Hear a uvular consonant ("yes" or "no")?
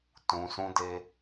no